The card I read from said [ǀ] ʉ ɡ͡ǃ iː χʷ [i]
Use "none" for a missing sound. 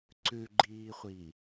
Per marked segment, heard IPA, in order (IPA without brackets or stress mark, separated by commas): ǀ, i